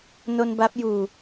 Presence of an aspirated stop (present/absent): absent